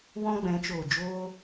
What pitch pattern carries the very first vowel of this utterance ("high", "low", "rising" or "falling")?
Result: high